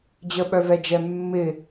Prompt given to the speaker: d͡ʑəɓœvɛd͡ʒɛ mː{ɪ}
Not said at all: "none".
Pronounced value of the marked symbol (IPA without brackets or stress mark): ɪ